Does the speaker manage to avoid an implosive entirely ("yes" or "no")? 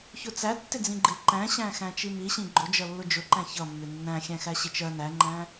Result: yes